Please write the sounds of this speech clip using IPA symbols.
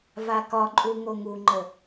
v a k ɒ ǃʼ u ŋ o ŋ u ŋ͡ǃ ə

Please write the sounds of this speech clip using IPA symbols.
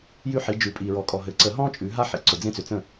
j ʉ˥ ħ i˨˦ d͡ʒ ʉ˨˦ pʼ i˨ ɹ ɔ˨˩˦ kʼ ɔ˨ ɦ ɘ˨˩˦ ǀ ə˨˩˦ ɦ ɔ̃˥ t͡ʃʼ ʉ˨˦ ɦ a˥ ħ ḭ˨˦ ǀ ʊ˨ d͡z ẽ˥ t͡s ʏ˨˦ t͡s ə̃˥˨

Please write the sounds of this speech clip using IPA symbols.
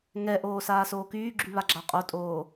ŋ ɛ ʔ oː s aː s oː k yː ɡ͡ǁ y β a ɡ͡ǁ a qʼ o tʼ oː

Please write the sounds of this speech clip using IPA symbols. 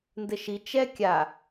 n d ɘ ʃ i t͡ʃ ɛ kʲ a

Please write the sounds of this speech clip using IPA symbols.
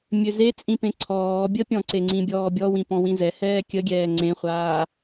mʲ ø z e t͡sʼ ĩ p ẽ ǀʰ ɔː bʲ ə pʲ ɔ̃ ǀ e ŋ͡ǀ ĩ bʲ ɔː bʲ ɔ w ĩ p ɔ̃ w ĩ z ɛ h ɛː kʲ ə ɡʲ ɛː ŋ͡ǀ ẽ χʷ aː

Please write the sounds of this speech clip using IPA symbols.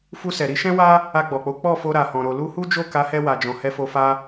f u˧ s ɛ˨ ɾ i˨˦ ʃ ɛ̃˦ w a˦ | a˧ ɡ͡b ɔ˨ k͡p o˨˦ k͡p ɔ˦˨ f o˧ ɾ a˨ h ɔ̃˨ ɾ o˨ l u˧ h u˦ d͡ʒ o˦˨ k a˨˦ h ɛ˧ w a˨ d͡ʒ ɔ̃˨ h ɛ˧ f o˧ f a˦

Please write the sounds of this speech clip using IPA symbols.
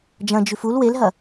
d͡ʒ ɐ̃ d͡ʒ ʉ f u l w e l ɦ ɐ

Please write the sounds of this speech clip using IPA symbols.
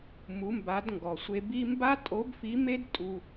m u˩˧ m b a˩˧ d ŋ ɡ ɔ˩ sʷ e˧ b i˥ m b a˥ tʼ o˧˥ b f i˧˥ m e˥ d tʼ u˧

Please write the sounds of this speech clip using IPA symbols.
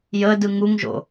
j ə d ɯ ŋ u ŋ ʒ o̰

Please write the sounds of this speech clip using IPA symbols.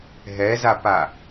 ɦ ɛ z a p a

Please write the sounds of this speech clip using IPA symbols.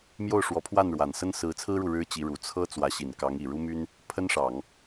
m j o˥˩ ʊ̯ ʂ w ɔ˧˥ pʰ w a˥˩ n ɻ w a˨˩ n s ə˥ n s ɹ̩˧˥ t͡sʰ ɹ̩˥ ɻ u˨ ɻ ɻ̩˥ t͡ɕ i˧˥ ɻ u˨˩ t͡sʰ ɤ˥ t͡s w ä˧˥ ɕ i˨˩ n k ɑ˧˥ ŋ i˨˩ ɻ u˥ m y˥ n | pʰ ə˥ n ʂ ɑ˨˩˦ ŋ

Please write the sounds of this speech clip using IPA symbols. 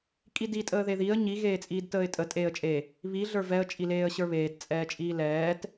kʼ i d i tʼ əː ð e ð i ə̯ ɲ i ɣ eː t͡sʼ iː d t əː ɪ̯ tʼ ə tʼ eː ə̯ t͡ʃʼ e | β i ɮ ə˞ v ɛ ə̯ t͡ʃʼ i l eː ə̯ ɕ ə˞ β eː t t͡sʼ ɛː t͡ʃʼ iː l ɛː t

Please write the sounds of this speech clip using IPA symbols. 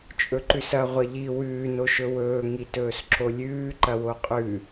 t͡ʃʼ ɵ ǃ ʉ s ɐ ʁʷ ɐ ʎ i w ʉː n o ʃ ɵ w ɵː ŋ i t ɵː s ǁ o lʲ ʉː ǃ ɐ w o qʼ ʉ

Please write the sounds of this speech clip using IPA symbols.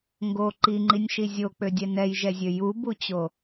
ŋ ɡ o ǃ i ŋ͡ǃ i nʲ ʃ i zʲ o k͡p ø dʲ ɛ n ɛ j ʒ ɛ zʲ ø j u b u t͡ɕ o

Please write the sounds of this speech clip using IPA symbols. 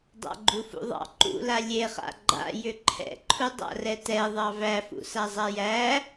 dˤ a̰ ɡ͡ǃ u f ṵ ðˤ ɑ̰ ǃ ṵ l a lʲ e χ a̰ ɡ͡ǃ a̰ j ʏ ǃʰ ɛ̰ ǃʰ u dˤ a̰ r ɛ t ɛ ðˤ ɑ v æ f ṵ s a zˤ a j æ

